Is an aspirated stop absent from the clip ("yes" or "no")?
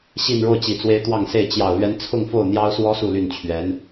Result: no